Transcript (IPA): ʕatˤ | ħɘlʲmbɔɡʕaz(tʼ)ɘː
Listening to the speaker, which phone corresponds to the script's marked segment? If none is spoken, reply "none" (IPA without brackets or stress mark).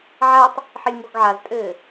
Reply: tʼ